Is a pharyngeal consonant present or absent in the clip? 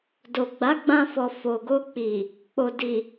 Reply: absent